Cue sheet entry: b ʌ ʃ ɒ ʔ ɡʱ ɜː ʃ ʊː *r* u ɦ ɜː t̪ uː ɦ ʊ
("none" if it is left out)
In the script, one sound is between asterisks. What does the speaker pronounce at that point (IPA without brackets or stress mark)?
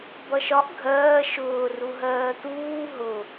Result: r